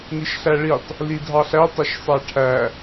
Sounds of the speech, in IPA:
niʃɬæɭitˤ | lidʱɑɬæ tˤɛʃsˤæʈʰæ

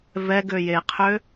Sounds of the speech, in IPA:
vɛɡø jeqʰø

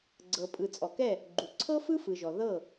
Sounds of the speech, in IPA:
ɡ͡ǀɤ˨pʼɯ˨t͡sʼɔ˨kɛ˦˨ | ɡ͡ǃu˨ ǀʰɤ˦fɯ˦fɯ˨ʒɔ˨ ðɤ˦˨

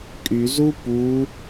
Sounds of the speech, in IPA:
kʼyzu pu

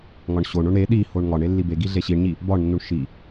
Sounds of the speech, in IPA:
ŋɒɳɕoɳoɳ ɾe ɗihoɳ ŋɒɳe lːibeɡi ɮeɕiɳɲi | bɒɳnːuɳ ʃi

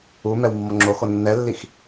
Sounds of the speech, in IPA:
u mɛwmːɔŋ͡ǁoxo nːɛlːix

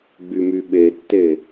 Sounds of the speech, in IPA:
ɡ͡bymyɓetːe

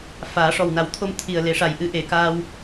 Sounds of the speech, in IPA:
faː˨˩˦ ʂɔ˨˩wna˨˩˦wt̪ʰo˧m t̪ʰi˨˩ə̯ le˨˩˦ʂa˨˩jʔɨ˧ ʔe˨˩˦kaː˧w

